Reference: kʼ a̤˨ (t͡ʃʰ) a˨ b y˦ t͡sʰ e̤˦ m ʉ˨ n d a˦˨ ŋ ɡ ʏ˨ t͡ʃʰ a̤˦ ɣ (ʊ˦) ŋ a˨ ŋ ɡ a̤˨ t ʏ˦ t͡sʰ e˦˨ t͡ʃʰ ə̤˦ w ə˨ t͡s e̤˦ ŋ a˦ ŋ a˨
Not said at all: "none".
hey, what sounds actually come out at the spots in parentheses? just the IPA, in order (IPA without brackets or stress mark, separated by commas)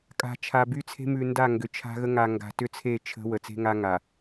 t͡ʃʰ, ə˦